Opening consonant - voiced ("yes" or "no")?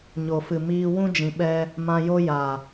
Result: yes